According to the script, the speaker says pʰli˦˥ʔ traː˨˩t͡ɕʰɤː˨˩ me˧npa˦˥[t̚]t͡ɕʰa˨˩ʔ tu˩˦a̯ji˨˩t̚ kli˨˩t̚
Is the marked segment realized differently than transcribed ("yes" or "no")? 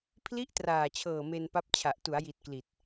yes